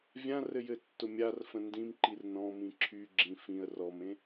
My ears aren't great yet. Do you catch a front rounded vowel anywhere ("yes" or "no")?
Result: yes